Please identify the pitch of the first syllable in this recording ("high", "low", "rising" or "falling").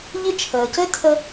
high